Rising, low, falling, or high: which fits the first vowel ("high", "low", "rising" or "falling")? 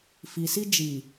low